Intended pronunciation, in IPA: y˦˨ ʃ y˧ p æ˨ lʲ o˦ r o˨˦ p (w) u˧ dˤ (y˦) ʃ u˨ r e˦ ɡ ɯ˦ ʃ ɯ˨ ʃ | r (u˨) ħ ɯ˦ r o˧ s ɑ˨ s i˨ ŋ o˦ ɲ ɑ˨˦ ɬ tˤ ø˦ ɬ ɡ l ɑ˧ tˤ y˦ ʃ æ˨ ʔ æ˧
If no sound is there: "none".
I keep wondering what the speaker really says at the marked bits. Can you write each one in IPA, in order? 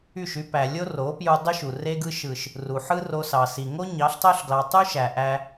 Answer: j, y˦, u˨

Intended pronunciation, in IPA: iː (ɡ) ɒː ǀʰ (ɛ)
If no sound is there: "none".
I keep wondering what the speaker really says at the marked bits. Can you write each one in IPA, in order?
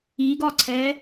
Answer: ɡ, ɛː

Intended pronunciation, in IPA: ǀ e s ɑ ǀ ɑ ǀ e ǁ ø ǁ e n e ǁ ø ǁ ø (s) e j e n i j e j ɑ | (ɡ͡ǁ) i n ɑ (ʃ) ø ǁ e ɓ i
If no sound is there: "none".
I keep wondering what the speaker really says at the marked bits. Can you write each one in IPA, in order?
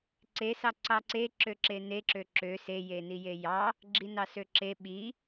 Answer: s, ɡ͡ǁ, s

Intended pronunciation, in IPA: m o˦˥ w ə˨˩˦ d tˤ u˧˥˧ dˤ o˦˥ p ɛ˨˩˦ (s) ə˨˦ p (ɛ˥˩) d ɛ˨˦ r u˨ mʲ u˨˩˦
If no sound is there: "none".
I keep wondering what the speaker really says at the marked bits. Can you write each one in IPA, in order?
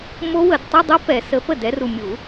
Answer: s, ə˥˩

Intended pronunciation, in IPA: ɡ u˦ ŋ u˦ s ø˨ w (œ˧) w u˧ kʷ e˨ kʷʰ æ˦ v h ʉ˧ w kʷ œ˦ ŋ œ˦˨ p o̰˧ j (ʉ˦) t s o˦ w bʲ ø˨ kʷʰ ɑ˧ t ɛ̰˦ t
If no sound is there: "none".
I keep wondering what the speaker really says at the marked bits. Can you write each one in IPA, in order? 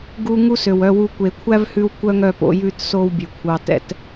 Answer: œ˧, ʉ˦˨

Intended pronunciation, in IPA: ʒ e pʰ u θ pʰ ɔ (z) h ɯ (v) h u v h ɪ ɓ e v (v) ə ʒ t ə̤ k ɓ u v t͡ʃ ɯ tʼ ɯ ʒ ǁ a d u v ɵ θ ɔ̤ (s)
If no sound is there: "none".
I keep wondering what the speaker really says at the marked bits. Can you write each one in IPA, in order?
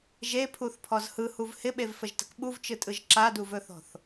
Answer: z, none, f, θ

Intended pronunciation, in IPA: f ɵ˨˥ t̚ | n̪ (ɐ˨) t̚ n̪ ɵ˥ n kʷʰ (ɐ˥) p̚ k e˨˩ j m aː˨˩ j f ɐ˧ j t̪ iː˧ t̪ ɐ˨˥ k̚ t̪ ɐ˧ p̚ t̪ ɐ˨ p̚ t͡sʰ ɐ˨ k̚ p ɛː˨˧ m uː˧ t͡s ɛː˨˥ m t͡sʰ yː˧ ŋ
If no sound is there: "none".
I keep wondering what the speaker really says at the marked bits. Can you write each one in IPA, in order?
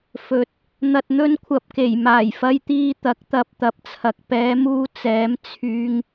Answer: ɐ˧, ɐ˧

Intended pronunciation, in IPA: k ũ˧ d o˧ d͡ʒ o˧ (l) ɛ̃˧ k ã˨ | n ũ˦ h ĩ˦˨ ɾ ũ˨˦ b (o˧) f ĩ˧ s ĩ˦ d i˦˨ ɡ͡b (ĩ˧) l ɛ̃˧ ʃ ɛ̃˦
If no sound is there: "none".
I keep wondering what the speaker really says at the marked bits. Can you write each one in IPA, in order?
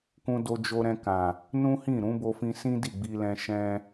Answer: ɾ, o˧, i˧

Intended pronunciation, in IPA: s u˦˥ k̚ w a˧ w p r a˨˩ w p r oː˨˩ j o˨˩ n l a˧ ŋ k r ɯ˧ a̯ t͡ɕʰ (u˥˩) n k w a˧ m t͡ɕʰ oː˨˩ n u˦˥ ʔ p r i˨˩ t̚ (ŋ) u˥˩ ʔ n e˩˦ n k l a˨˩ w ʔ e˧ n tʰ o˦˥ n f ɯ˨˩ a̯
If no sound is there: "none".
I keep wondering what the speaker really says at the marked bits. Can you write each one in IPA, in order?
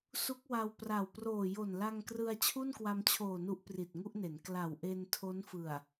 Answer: u˥˩, ŋ

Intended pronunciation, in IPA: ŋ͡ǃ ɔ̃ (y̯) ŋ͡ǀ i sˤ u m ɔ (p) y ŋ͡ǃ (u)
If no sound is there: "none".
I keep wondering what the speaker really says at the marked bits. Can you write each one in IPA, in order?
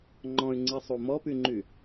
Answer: y̯, p, y

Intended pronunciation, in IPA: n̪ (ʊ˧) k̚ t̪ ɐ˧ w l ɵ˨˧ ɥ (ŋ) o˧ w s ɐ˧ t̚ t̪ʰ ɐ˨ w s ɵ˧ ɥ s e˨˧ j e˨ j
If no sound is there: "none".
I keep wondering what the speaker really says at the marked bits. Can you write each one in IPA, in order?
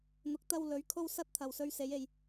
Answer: ʊ˨˥, kʰ

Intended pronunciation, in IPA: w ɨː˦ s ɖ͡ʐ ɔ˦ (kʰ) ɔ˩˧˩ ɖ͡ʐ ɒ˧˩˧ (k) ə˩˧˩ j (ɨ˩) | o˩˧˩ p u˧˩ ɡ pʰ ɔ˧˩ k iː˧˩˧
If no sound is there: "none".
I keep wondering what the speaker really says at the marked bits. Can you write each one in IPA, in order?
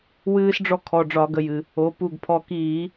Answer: kʰ, ɡ, ɨ˩

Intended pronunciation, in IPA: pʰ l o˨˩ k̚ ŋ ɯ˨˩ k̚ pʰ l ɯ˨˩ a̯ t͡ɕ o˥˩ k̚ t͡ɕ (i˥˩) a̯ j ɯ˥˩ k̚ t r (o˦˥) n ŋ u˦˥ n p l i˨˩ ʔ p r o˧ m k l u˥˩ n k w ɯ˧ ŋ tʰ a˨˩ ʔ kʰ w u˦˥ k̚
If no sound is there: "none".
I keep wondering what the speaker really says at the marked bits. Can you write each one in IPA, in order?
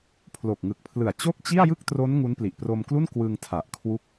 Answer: i˥˩, o˦˥

